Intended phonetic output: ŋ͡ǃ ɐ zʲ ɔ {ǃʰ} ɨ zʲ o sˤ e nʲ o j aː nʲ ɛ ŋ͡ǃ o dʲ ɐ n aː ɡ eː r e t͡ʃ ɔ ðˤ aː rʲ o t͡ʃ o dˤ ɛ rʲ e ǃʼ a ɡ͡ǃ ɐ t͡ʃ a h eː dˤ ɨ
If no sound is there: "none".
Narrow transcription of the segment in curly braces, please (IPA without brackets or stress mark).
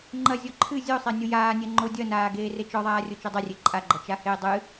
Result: ǃʰ